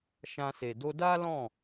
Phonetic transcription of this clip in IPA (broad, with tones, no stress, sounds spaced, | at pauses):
ʃ ã˧ s e˨ d o˧ d a˦ l ɔ̃˦˨